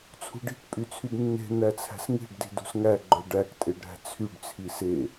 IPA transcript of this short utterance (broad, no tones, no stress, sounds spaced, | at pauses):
t͡sʰ ṳ ɖ i̤ k pʼ y t͡sʰ y d nː e̤ n̪ æ t͡sʰ æ̤ s ŋ i̤ ɖ d i̤ d ṳ s ŋ æ ɡ͡ǃ œ ɖ æ k tʼ e ɖ ɾ æ̤ t͡sʰ y ɖ t͡sʰ i s e